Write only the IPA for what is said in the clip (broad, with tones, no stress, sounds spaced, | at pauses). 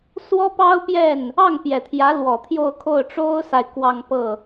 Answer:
s w ɔ˥ p ɑ˥ ʊ̯ p j ɛ˥˩ n | ɑ˥˩ ŋ p j ɛ˨˩ t̪ʰ j ä˧˥ l w ɔ˨˩ t̪ʰ j o˥˧ ʊ̯ kʰ o˥˩ ʊ̯ ʈ͡ʂ o˥ ʊ̯ s a˨ ɪ̯ k w ɑ˥˧ ŋ p ɤ˥˩